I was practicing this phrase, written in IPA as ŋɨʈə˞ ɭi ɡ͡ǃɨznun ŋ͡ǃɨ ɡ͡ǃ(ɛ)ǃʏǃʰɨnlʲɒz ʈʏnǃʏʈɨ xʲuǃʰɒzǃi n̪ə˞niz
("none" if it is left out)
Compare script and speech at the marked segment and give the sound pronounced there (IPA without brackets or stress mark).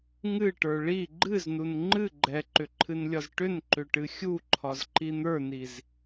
ɛ